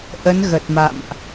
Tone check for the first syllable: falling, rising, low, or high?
rising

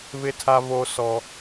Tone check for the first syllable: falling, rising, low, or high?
high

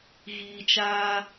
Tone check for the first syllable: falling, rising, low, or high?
low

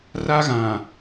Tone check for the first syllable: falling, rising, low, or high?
high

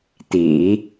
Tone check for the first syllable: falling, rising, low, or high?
low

